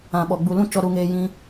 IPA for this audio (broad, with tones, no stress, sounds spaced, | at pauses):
ã˨ ɓ ɔ˨ ɡ͡b u˨ l ũ˦ t͡ʃ ɔ˧ ɾ u˧ ŋ eː˧ j ĩ˧